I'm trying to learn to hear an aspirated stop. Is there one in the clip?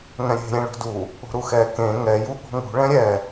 no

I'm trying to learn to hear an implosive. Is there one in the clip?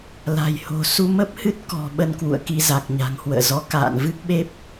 yes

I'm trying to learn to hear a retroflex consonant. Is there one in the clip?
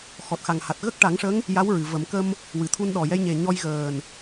yes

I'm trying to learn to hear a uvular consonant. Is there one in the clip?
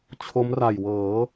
no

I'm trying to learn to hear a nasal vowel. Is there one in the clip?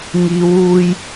no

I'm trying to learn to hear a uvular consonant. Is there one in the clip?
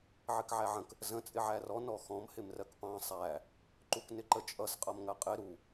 yes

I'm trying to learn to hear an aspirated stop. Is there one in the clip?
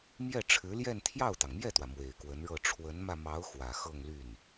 yes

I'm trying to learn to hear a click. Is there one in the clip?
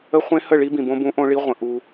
no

